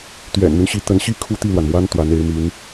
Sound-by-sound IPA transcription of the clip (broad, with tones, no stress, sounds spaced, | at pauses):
t̪ ɥ ɛ̰˨˩ n n̪ y˦ n ɕ i˧˥ t̪ ə˧˥ n ɕ i˥ kʰ u˥ t̪ i˥˩ l w a˩ n m w a˥ n t̪ w a˧˥ n e˧˥ ɪ̯ m y˧˥ n